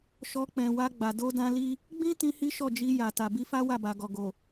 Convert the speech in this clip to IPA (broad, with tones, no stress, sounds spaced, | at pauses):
ʃ ɔ˧ k͡p ɛ̃˨ w a˧ ɡ͡b a˨ d o˧ d ã˧ l i˦ | ɡ͡b ĩ˦ t ĩ˦ h i˦ ʃ ɔ˦˨ d͡ʒ i˧ j a˨ t a˨ b i˧ f a˦ w a˦˨ b a˨ ɡ ɔ˨ ɡ o˨